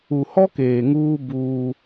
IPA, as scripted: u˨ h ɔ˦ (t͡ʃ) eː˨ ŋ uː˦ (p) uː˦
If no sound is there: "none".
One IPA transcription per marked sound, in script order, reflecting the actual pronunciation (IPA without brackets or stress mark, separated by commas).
k, b